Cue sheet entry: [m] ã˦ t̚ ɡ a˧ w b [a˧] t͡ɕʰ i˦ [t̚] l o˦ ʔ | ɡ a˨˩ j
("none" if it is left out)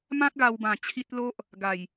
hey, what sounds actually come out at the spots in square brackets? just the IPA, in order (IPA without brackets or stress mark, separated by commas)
m, ã˧, t̚